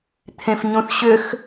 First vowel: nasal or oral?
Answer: nasal